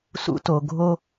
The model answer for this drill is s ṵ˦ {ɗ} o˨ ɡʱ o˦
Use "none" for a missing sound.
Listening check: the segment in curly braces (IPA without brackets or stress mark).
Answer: t